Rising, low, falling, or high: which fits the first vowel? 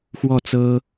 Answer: falling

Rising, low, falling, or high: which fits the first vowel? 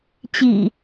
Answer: low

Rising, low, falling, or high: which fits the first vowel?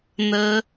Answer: high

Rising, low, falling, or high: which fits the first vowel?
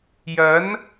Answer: rising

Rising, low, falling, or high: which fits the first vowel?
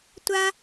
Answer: high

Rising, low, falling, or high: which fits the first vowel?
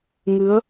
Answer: rising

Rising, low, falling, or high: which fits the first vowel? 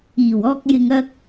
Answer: low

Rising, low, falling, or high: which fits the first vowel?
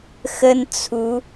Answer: high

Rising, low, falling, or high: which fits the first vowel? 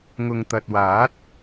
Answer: low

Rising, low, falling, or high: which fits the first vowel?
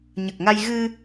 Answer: low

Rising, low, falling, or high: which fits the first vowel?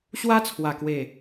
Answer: high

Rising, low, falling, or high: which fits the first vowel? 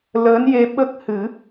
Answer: rising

